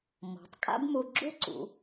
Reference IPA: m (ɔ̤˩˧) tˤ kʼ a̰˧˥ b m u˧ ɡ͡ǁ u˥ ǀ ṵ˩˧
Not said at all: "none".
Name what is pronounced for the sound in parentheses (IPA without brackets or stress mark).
ɔ̤˩˧